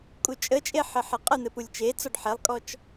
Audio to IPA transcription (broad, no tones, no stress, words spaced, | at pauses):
kʼut͡ʃʼət͡ʃʼe ħɘħeqʼən̪ɘ pulʲt͡ʃet͡sɔɖ ħelˠkʼɔt͡ʃ